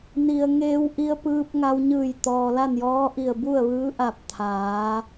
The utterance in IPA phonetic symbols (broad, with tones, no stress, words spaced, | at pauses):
ni˩ə̯ŋeː˧w ʔi˧ə̯ pɯː˧p̚ ŋa˧wɲɯː˧˩j t̪ɔː˩la˥˨njɔː˧˥ʔi˧˩ə̯ bu˥˨ə̯ʋɯː˧˥ʔa˧˩p̚ t̪ʰaː˩˧